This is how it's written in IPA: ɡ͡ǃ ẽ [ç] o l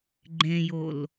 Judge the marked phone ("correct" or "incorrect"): incorrect